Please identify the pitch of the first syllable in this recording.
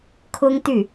high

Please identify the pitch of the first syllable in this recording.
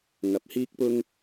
rising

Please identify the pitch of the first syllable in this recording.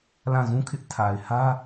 falling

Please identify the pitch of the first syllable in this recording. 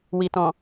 low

